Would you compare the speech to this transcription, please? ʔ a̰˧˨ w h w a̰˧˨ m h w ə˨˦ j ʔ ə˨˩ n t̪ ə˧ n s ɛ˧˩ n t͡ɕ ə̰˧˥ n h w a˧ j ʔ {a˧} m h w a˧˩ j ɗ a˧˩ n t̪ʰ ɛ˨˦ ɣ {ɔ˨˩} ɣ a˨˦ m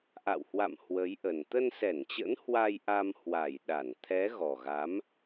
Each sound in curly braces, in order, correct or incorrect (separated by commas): correct, correct